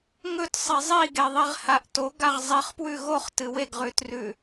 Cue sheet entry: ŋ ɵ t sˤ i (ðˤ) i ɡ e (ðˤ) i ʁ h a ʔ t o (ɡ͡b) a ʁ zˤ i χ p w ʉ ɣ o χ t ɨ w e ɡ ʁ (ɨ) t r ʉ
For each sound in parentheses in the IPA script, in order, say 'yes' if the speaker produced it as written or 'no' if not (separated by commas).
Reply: no, yes, no, no